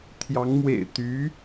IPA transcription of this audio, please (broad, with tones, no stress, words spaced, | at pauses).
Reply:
t̪ʰjɑ˧˥ŋmwḛ˨˩ɪ̯t̪y˧˥